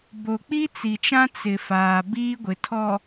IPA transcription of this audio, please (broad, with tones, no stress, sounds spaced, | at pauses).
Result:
b o˨ k͡p i˦ t͡s i˨ t͡ʃ ã˦ t͡s ɪ˨ f aː˨ b iː˦ ɡʷ ɪ˨ tʰ ɔ˨